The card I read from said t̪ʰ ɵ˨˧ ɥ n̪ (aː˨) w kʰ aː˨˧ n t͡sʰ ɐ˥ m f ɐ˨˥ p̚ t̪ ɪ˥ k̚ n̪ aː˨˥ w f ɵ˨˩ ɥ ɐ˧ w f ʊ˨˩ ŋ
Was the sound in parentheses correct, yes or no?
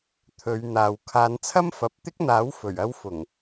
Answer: yes